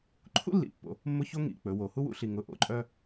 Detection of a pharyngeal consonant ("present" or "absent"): absent